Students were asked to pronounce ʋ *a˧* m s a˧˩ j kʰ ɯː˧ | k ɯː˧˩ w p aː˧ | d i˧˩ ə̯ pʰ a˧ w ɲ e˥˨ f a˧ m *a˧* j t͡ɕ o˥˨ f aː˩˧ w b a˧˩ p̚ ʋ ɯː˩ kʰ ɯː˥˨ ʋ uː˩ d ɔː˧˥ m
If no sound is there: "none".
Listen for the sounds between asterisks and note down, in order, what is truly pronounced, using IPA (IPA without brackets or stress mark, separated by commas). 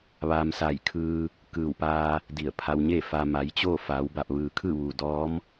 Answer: a˧, a˩˧